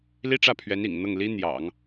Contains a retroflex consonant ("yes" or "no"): yes